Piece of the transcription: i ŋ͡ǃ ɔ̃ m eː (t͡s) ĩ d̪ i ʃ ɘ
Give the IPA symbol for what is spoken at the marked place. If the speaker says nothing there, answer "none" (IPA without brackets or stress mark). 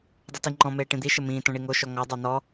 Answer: ʈ